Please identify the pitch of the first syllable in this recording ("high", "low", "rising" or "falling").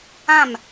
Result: falling